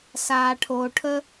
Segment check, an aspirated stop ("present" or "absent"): present